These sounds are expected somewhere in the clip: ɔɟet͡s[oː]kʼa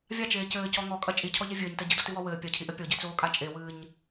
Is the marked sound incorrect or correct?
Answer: correct